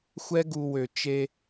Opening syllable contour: high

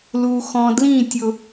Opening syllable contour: low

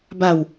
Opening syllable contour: falling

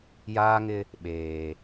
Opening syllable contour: high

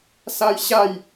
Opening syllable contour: high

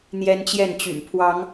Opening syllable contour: high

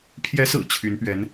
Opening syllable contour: rising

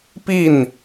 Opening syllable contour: falling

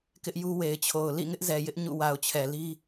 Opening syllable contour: high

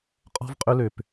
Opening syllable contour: high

